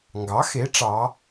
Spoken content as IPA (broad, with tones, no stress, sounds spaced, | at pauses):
ŋ ɡ ɑ˩˥ x e˩˥ ʈ͡ʂ ɑ˩˧